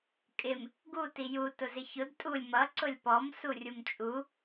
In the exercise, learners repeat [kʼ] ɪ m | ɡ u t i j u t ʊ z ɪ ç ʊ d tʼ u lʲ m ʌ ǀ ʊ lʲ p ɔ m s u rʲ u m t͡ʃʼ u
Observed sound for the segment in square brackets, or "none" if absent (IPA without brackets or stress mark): kʼ